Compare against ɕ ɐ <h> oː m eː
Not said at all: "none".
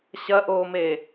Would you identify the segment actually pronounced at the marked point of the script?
ʔ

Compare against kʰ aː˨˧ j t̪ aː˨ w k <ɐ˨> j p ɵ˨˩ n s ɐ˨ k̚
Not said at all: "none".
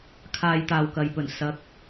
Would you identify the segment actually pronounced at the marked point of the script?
ɐ˨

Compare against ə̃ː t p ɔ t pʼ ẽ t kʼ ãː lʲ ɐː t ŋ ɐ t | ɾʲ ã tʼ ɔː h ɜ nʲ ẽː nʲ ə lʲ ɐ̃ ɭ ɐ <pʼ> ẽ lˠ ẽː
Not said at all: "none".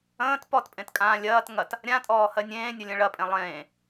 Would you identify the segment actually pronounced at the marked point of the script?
pʼ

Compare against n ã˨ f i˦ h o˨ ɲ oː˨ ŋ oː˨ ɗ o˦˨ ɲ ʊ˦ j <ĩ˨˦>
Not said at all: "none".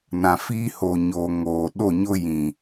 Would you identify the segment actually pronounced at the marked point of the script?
ĩ˨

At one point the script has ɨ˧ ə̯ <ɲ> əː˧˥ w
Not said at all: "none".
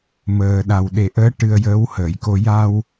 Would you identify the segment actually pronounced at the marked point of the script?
j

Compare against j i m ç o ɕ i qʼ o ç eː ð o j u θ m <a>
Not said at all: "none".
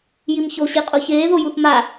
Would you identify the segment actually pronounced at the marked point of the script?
a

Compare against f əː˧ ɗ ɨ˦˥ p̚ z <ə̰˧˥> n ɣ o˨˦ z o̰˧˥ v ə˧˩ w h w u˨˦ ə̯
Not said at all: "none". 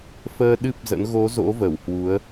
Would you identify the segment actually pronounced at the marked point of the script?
ə̰˧˥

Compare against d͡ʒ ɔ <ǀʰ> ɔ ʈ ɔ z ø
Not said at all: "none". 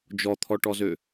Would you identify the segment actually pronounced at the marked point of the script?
t̪ʰ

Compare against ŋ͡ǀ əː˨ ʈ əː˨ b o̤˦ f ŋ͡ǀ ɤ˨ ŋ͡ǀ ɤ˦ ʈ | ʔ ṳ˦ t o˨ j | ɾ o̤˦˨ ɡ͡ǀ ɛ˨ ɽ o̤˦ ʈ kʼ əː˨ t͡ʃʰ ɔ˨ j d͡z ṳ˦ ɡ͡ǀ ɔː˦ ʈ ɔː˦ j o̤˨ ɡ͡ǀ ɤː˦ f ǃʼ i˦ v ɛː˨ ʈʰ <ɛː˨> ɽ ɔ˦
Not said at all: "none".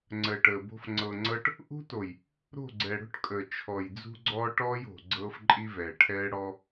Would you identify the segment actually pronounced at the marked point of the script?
ɛː˦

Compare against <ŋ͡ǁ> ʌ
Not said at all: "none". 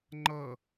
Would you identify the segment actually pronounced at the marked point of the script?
ŋ͡ǃ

